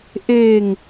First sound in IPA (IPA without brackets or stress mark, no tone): ʔ